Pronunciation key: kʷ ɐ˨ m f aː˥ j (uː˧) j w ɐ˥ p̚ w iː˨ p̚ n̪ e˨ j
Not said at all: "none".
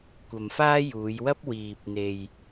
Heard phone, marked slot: uː˨˧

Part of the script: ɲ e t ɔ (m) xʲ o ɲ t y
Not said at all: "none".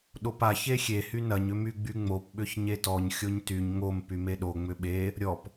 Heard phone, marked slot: ɲ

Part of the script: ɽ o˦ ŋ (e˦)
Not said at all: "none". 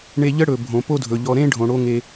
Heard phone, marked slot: e˦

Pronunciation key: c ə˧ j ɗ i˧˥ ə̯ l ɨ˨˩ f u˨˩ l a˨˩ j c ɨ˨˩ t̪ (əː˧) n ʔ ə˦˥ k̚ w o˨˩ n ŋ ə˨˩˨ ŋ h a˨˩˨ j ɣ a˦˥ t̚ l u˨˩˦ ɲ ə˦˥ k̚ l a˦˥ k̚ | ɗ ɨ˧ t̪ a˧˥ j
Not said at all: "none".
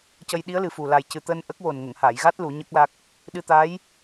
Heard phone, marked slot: əː˧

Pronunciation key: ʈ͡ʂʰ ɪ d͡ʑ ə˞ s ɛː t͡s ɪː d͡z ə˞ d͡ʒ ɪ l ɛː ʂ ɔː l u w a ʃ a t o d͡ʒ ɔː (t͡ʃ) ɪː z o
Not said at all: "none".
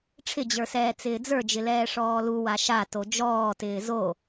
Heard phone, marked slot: t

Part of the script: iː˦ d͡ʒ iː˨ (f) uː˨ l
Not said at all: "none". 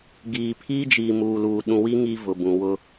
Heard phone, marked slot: m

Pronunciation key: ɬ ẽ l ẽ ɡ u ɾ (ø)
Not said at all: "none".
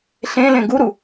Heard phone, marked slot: u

